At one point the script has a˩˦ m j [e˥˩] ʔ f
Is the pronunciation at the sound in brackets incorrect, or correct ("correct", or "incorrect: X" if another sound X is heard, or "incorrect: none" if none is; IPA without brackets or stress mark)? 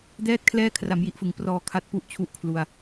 incorrect: i˥˩